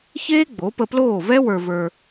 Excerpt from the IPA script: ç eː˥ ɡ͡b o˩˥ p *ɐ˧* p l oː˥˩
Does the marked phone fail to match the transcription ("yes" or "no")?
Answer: yes